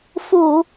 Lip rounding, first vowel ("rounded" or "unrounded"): rounded